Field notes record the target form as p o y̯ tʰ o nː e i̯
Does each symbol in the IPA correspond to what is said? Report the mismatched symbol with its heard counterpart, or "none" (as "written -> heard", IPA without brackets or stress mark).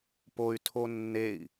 none